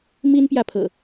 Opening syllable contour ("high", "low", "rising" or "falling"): high